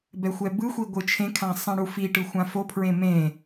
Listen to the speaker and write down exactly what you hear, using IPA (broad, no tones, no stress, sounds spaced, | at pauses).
b ɛ xʷ ɛ b ɯ xʷ i ɡʷ ɯ t͡ʃʰ ẽ kʰ ã sˤ ɛ̃ ɽ u f i ʈ ɯ xʷ ã f o pʰ ɹ ẽ m ẽ